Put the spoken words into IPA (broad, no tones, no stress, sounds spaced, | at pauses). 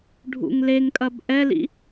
ɖʱ ṵ ŋ l e ŋ kʼ ɐ b ʔ ɛ l ḭ